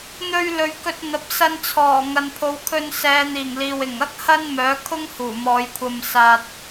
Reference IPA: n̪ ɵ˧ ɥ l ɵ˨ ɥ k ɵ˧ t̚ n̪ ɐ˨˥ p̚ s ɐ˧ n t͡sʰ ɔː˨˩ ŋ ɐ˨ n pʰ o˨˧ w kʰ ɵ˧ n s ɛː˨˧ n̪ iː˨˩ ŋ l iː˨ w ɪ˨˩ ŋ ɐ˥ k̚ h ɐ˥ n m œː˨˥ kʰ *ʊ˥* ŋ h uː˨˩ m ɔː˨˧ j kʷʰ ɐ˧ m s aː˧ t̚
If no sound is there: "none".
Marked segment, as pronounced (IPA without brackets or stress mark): ʊ˥